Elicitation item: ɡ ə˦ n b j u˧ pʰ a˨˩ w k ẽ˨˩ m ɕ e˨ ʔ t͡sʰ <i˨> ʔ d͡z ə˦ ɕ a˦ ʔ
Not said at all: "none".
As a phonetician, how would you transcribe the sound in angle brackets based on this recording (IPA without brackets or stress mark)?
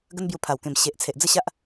e˨